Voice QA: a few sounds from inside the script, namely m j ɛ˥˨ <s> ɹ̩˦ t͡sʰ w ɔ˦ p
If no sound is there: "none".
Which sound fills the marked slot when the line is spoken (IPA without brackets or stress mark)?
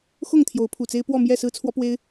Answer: s